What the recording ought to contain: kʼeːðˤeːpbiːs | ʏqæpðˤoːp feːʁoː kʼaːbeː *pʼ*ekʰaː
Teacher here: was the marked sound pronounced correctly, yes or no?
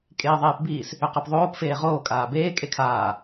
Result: no